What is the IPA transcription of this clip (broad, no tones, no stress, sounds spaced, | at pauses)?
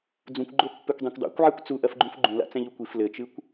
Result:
d͡z ũ kʷ ɡ͡ǃ o pː e kʷ dˤ ɛ̃ kʷ dˤ a̰ kʷ ʕ ɛ kʷ t͡s u ʔ ɐ f ɡ͡ǃ ũ f ɡ͡ǃ ũ l a̰ t͡s ɛ̃ ʎ u kʷ i f l ɘ t͡ʃ ɨ kʷ